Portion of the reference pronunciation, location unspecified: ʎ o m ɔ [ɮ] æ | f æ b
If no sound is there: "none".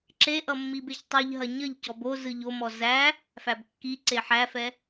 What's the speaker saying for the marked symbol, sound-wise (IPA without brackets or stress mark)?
z